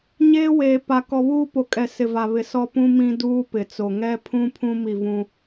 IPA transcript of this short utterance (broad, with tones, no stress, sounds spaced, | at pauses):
ɲ eː˦ w eː˨ p a˨ k ɔ˨ β uː˦ p o˨ kʼ ɛ˨ s ɪ˨ v a˨ β ɪ˨ s ɔ˦ p ũ˦ m ĩ˦ d uː˦ p ɪ˨ t͡s o˨ ŋ ɛ˦ pʰ ũ˦ pʰ ũ˦ m i˦˨ v ũ˦